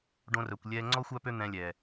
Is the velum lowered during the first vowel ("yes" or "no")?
yes